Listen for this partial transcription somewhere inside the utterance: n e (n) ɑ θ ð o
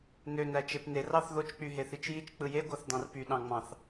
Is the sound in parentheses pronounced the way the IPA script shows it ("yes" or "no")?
no